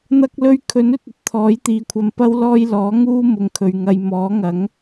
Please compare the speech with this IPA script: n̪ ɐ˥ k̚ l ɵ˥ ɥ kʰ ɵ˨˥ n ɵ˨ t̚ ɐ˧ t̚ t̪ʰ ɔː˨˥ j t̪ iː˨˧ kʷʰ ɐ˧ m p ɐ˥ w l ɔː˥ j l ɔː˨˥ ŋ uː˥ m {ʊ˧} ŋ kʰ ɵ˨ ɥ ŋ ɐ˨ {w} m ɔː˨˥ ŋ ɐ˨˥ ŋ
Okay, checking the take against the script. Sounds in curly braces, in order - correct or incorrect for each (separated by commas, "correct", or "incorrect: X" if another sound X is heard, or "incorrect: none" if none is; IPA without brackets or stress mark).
incorrect: ʊ˨, incorrect: j